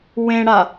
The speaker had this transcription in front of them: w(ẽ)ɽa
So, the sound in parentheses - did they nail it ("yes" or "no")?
yes